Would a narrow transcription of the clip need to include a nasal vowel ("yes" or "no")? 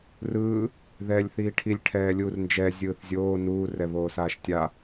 no